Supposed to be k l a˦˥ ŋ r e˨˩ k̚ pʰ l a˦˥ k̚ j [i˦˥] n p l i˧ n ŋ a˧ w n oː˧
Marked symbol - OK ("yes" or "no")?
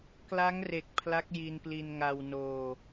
no